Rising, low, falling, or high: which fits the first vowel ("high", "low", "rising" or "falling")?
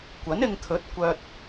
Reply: rising